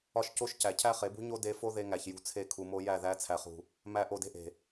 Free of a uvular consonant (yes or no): no